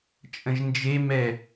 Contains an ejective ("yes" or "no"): yes